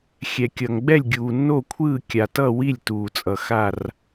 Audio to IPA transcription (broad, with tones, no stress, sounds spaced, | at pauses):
xʲ ɛ˩ kʲ ʌ˩ ŋ ɡ͡b ɛ˥˨ lʲ ɡʲ uː˩ nː o˥˨ kʷʰ ɯː˥˨ kʲ a˩ t ʌ˥˨ w i˥˨ lʲ t uː˩ t͡sʼ ʌ˩ x a˥˨ r